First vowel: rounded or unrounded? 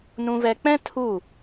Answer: rounded